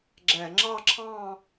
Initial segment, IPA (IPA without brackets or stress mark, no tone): ɡ͡ǁ